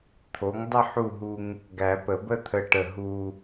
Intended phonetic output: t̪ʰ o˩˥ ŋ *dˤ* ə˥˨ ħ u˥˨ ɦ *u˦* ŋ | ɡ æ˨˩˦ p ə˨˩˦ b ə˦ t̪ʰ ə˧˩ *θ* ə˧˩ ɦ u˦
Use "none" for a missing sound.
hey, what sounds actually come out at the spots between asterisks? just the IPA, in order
dˤ, u˦, ʈ

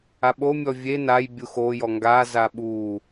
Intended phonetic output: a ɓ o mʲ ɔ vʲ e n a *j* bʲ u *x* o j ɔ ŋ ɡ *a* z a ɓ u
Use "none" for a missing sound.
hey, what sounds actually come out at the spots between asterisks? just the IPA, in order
j, x, a

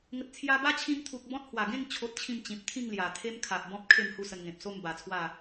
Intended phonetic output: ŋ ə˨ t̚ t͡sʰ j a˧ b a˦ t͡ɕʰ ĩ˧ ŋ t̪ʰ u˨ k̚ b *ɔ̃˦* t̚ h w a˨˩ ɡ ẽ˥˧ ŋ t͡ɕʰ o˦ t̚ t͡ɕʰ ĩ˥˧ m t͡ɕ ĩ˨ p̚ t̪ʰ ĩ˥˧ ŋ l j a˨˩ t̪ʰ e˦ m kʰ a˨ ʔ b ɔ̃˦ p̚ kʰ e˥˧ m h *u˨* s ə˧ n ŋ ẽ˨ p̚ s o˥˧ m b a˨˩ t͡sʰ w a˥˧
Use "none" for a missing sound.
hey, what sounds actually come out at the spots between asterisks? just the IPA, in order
ɔ̃˦, u˦

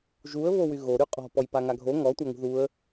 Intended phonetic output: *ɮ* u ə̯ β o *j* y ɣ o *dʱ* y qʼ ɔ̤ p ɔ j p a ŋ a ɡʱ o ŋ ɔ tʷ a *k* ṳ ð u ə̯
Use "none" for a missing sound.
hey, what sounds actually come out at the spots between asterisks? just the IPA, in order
ʒ, w, ɾ, ŋ

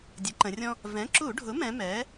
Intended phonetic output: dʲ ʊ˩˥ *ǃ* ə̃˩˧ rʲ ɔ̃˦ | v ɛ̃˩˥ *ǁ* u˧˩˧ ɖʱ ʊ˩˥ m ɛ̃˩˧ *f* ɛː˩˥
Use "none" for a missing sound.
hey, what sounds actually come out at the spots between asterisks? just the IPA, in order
ǃ, ǁ, m

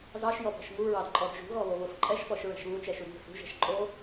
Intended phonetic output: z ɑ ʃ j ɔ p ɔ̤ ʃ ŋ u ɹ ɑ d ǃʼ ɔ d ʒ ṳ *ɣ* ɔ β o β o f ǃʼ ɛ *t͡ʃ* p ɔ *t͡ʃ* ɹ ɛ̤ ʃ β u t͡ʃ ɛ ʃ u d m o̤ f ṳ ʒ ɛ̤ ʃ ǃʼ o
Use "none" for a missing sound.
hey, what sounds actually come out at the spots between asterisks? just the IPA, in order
ɣ, ʃ, ʃ

